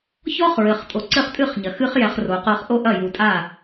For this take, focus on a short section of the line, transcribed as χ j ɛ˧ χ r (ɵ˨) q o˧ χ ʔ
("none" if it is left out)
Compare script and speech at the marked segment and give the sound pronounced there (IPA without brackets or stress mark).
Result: o˨